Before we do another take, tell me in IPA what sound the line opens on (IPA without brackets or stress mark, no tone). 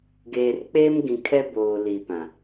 ɡ